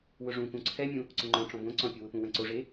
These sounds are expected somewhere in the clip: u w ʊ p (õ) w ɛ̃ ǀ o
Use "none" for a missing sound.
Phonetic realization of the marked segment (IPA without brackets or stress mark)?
ũ